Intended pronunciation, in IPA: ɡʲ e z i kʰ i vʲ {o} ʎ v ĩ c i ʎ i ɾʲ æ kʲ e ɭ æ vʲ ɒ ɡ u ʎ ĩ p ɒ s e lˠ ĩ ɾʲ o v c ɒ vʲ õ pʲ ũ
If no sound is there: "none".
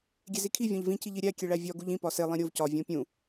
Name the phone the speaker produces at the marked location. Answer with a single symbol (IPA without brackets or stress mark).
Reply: õ